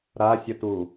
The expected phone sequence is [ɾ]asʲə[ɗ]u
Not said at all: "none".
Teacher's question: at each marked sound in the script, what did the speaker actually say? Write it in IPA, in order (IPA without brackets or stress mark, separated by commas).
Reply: ɾ, t